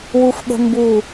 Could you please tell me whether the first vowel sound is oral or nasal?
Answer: oral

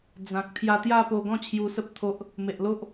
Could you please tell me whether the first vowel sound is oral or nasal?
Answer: nasal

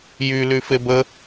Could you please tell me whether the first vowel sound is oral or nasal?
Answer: oral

